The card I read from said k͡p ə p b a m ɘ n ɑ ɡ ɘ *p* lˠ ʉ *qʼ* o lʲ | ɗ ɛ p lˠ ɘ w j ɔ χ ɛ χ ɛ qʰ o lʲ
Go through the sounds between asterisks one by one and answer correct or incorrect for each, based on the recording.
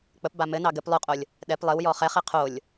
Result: correct, correct

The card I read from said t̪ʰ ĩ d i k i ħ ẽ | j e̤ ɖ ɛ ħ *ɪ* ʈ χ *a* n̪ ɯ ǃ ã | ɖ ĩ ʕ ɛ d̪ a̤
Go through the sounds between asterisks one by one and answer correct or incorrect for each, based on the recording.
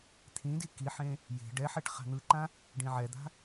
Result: incorrect, incorrect

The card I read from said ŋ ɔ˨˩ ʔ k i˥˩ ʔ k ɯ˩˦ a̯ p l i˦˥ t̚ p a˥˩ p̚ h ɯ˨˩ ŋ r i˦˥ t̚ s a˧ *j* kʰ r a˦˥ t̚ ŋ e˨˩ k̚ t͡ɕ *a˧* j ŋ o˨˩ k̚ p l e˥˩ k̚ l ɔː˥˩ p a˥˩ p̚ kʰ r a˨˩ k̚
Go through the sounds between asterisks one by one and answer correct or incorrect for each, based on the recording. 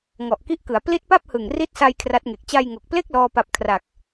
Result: correct, correct

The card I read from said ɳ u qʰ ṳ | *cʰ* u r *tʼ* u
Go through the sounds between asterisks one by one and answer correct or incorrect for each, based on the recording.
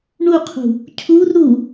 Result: correct, incorrect

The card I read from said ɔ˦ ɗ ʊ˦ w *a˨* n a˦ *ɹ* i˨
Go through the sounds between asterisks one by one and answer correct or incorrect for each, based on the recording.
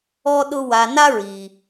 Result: correct, correct

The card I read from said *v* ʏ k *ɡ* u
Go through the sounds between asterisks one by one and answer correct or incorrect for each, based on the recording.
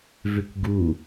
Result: correct, correct

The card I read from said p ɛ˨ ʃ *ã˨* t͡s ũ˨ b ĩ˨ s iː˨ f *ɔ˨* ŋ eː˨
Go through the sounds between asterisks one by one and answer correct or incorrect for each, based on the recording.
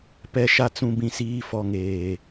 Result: incorrect, correct

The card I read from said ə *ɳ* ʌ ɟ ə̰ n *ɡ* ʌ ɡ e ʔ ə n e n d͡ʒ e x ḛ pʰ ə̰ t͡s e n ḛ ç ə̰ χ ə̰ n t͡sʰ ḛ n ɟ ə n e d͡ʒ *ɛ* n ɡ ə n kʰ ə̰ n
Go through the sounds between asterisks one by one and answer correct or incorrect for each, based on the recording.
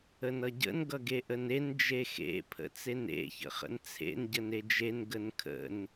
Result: incorrect, correct, incorrect

